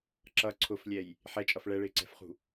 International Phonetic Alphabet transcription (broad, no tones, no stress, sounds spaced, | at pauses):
ǁ ʌ ǀʰ ʊ f lʲ ɛ j | ħ ɛ t͡ʃʼ ʌ f ɭ ɛ ɭ ɪː ǀ ɛ̤ f χ ṳ